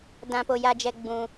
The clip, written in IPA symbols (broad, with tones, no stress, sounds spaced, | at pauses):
d ã˧ p o˧ j a˧ d͡ʒ ɛ˧ ɡ͡b ũ˧